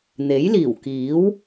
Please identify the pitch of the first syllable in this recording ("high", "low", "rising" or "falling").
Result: rising